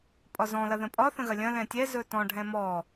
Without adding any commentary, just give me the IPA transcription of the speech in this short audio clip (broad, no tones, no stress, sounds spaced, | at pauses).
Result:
pʼ ɒ z ɔ̃ l ɐ ð ə̃ pʼ ɒ θ ə̃ ɣ ɐ lʲ ɐ̃ l ɛ̃ tʲ ɛ z ɵ t ɔ̃ ɖʱ ɛ̃ m ɔ